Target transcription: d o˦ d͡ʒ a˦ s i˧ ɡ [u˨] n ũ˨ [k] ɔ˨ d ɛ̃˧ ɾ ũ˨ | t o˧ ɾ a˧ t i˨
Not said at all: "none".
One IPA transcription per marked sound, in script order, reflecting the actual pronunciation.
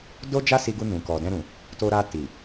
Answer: u˧, k

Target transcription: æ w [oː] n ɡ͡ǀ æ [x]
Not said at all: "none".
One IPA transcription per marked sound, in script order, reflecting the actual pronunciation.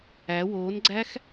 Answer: oː, x

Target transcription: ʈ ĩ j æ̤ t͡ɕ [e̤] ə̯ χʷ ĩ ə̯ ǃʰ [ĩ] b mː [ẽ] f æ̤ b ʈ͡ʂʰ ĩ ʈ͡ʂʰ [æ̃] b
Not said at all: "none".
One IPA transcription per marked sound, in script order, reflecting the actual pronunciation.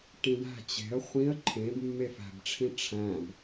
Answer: e̤, ẽ, e, æ̃

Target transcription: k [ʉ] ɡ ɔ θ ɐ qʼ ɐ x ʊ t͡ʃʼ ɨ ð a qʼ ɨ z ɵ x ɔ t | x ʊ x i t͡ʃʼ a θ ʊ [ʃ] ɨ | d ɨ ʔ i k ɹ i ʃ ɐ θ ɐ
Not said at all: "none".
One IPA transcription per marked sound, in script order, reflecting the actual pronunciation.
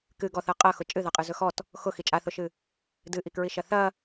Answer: ɨ, ʃ

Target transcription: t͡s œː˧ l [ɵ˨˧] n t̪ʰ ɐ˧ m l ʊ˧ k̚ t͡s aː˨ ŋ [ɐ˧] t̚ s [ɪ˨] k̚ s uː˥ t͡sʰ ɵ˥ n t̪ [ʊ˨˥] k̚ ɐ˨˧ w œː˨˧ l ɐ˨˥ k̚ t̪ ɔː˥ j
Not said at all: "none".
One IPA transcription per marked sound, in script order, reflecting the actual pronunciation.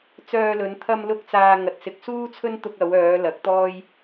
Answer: ɵ˨˧, ɐ˨, ɪ˨, ʊ˧

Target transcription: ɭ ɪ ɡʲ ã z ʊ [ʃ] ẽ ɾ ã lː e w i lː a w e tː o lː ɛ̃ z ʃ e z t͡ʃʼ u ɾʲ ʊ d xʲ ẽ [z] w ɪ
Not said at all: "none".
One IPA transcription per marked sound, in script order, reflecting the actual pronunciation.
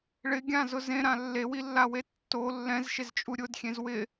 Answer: z, z

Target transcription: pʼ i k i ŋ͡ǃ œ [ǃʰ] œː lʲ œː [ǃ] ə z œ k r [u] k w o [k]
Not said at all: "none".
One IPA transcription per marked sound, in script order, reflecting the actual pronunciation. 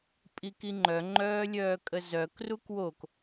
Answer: ŋ͡ǃ, kʼ, u, k

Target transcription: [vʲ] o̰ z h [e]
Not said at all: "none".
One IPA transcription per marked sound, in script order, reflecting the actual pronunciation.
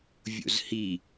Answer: vʲ, i

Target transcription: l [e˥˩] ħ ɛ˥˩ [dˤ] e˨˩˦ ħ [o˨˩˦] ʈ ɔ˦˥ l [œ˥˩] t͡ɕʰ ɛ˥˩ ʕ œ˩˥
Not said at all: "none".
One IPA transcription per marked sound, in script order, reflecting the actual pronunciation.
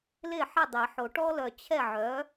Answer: e˥˩, dˤ, o˨˩˦, œ˨

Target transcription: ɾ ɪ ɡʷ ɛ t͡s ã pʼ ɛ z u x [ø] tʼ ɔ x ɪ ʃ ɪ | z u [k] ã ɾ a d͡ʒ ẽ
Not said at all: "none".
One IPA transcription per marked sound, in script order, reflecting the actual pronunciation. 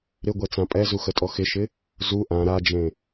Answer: ə, ʔ

